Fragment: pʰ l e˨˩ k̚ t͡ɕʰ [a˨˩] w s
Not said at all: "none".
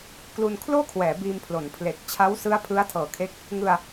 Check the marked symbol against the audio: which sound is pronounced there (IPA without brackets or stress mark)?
a˦˥